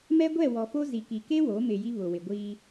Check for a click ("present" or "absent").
absent